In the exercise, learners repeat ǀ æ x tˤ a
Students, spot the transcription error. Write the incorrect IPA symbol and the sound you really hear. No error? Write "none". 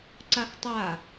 æ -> a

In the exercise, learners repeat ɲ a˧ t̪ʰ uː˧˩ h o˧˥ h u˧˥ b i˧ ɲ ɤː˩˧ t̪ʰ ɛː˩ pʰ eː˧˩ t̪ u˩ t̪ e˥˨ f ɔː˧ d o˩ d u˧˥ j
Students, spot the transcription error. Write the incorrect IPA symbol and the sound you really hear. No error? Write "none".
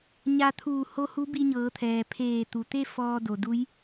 none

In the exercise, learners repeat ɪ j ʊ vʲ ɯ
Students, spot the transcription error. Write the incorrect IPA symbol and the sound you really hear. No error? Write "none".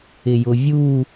ɯ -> u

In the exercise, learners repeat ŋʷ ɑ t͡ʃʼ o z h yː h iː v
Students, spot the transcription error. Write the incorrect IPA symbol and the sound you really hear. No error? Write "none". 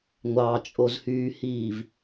none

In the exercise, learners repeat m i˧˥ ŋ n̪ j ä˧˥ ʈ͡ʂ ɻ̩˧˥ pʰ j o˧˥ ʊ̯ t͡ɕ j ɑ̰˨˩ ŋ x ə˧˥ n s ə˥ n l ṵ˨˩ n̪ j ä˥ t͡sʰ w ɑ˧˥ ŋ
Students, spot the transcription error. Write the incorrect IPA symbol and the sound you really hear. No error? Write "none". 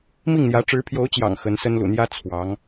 i˧˥ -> i˥˩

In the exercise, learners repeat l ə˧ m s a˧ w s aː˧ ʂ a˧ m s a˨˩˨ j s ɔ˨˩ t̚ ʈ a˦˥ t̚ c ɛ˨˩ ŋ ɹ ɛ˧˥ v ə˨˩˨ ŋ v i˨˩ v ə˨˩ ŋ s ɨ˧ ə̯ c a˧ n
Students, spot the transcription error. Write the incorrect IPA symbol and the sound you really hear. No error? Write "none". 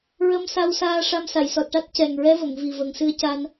l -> ɹ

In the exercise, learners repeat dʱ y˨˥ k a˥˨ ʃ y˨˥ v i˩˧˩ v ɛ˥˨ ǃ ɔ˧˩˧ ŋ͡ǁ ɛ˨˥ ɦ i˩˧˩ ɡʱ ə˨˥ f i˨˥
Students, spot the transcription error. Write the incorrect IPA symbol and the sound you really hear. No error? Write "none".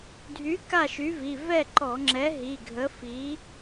none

